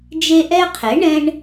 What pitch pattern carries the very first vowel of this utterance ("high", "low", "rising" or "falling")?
high